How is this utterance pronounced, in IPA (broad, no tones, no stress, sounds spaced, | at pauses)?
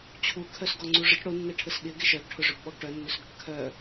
t͡ɕʰ u kʰ œ s ɡ ɔ ŋ͡ǀ u ʐ ə ʈ ɽ o nː ɛ ʈʰ ə s ɠ ɪ ɡ ɪ ʃ œ ɡ ʈʰ ʊ ʐ ʏ b ɓ ɔ ɡ ʈ œ nː ʏ s ɡ ʊ ʈ kʰ œ